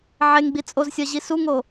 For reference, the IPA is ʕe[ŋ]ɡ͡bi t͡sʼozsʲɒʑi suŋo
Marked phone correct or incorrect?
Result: correct